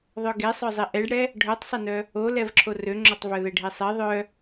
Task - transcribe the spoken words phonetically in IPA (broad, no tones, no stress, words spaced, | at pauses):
ðˤœɡesˤœ zˤiʔɛɖɽɛ | ɖʱœtˤsˤenœ | olɛv ǁʰorøŋ͡ǁotˤ vœðɛɖʱisˤi ðˤœ